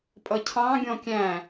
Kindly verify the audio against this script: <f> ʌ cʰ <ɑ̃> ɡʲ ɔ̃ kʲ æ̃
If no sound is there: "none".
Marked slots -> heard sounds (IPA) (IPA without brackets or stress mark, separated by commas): pʼ, ɑ̃